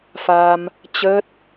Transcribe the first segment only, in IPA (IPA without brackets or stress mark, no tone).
f